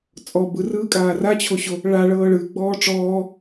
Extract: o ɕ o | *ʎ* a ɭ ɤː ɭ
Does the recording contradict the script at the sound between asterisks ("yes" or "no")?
yes